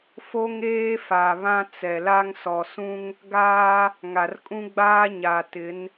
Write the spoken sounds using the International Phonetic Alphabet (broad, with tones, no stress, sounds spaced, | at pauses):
f o˦ ŋ eː˦ f a˨ β ã˦ t͡s ɛ˨ l a˦ ŋ s ɔ˨ s ũ˦ ŋ | ɡ aː˦ | ŋ a˨ r kʼ ũ˦ ɡ͡b aː˦ ɲ a˨ t ɪ˨˦ n